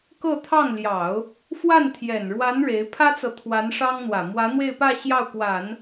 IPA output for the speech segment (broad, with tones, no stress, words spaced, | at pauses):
kɤ˥˧t̪ʰɑ˥˩ŋljɑ˨˩˦ʊ̯ | fwa˥˩nt̪ʰjɛ˨˩nɻwa˧˥n ɻe˧˥ɪ̯ pʰä˥t͡sɤ˨ t̪ʰwa˧˥nʂɑ˥ŋn̪wä˨˩ mwä˧˥n̪we˥˧ɪ̯pä˥˧ ɕjɑ˥˩ʊ̯kwa˨˩˦n